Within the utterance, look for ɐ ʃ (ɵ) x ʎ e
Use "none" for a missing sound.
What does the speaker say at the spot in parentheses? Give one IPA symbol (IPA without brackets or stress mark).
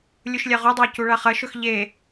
ɵ